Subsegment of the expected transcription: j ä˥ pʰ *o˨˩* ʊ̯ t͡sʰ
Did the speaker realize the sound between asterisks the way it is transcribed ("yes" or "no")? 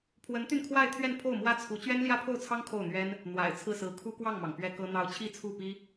no